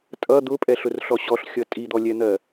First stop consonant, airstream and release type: ejective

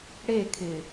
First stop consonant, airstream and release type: aspirated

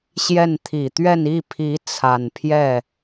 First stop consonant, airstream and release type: aspirated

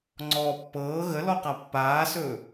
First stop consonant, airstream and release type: click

